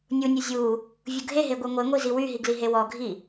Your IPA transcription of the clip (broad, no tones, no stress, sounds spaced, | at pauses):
nʲ u nʲ u zʲ u | vʲ u ɡʱ e ɦ e ɡʷ e ŋʷ e ŋʷ i z i w y ɦ i ɡ l i ɦ e w ɔ ɡʱ i